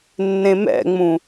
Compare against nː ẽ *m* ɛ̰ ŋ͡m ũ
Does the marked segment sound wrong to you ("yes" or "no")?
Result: no